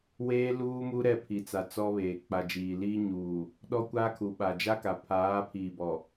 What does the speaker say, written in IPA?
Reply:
weː˦luː˦ mu˦ɾɛ˦˨pʰi˨t͡sa˨ t͡sɔ˦βeː˨ k͡pa˨d͡ʒiː˨liː˦ ɲuː˨ | ɗɔ˦kʷaː˦kʰu˨ ɓa˨d͡ʒa˦ka˨ pʰaː˨˦ pʰiː˨bɔ˨

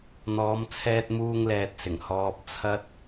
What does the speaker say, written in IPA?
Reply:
n̪ɔː˨˧mt͡sʰɛː˧t̚ muː˧ŋlɛː˨t̚sɪ˨˩ŋ hɔː˨p̚ t͡sʰɐ˧t̚

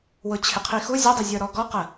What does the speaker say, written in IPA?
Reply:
wʊt͡ɕʰɪqʰixu zʲədˤɪzʲə˞ ɾɔɡɔqə

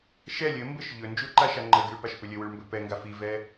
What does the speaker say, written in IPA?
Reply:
ʃɛ lʲɘmbɘʃ ʎɵnd͡ʒuǃaʃa ŋ͡ǃəɡiɭpaʃpʏ lʲɘwʉɭmbɵ pɛŋɡa fivɛ

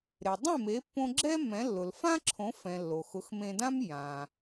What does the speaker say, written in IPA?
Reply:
ɾe˩dˤẽ˥˩me˩˥pːõ˧ ɡ͡ǁɛ˥ mɛ̃˩˥lːʊ˩l fã˥ ǁʰõ˩˥fɛ̃˩ lːo˩xʊ˩˥xmẽ˧dã˥m jã˩

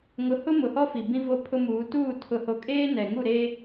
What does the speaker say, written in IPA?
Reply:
ŋʊ˨˦hʊ˦ mʊ˨hɔ˦fi˨bĩ˦ vo˦pʰʊ˦muː˨˦ tuː˦˨ tʰʊ˨ho˨kʼeː˦ nɛ˨ŋu˦˨ɾe˦

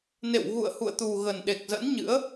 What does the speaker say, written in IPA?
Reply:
nḛ˧˨wɣṵ˧˨ə̯hṵ˧˨ə̯ t̪u˨˩ ɣə˨˩nɗe˨˩k̚zə̰˧˥nɲɨ̰˧˥ə̯

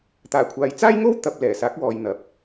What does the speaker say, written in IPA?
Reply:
t̪aː˨˩kʷʰaː˨jt͡saː˥jŋo˥w t̪ɐ˨p̚ lɛː˨˩saː˨˥k̚wɔː˨j n̪ɐ˨˥p̚

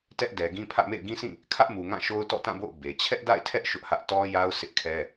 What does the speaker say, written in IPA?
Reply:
tɛ˦ʔdɛ˨ɡĩ˦ pʰä̰˦˨mḛ˦˨ɪ̯ ɡĩ˦sĩ˦˨ | kʰä˦ʔmu˨ ŋã˦˨ʃo˦ʊ̯ tɔ̰˦˨tã˦˨bo̰˦˨ʊ̯ be˨ t͡ɕʰɛ˦ʔda̰˦˨ɪ̯tʰɛ˦ʔ ʃʊ˦ʔhä˦ʔ tɔ˦ja˦ʊ̯ sʰɪ˦ʔkʰɛ˦

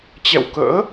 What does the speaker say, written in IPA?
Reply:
t͡ɕɛ̰˧˨wkə̰ː˧˥

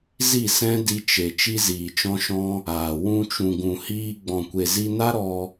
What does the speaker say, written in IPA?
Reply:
zi˦˨sɛ̃˦ di˧t͡ʃe˨ t͡ʃi˦ziː˨t͡ʃɔ̃˦ʃɔ̃˦ | aː˨ wũ˧t͡ʃũ˨ɡũ˨hiː˧ ɡ͡bɔ̃˨kʷe˨zi˧na˦ ɾɔ˧

